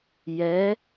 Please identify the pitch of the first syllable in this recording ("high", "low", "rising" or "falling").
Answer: rising